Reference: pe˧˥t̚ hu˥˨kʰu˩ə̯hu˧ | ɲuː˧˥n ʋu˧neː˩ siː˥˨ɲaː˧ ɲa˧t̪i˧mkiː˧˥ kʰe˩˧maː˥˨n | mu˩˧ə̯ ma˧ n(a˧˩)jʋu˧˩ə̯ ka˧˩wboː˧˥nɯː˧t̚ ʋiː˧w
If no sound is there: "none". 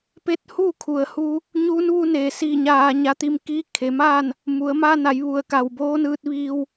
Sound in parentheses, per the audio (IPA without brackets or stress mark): a˩˧